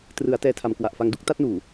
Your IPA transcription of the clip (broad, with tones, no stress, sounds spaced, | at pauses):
t r ɯ˩˦ a̯ t ɛː˧ tʰ a˨˩ m k w a˨˩ ʔ f a˧ ŋ d u˥˩ k̚ t a˦˥ t̚ n uː˨˩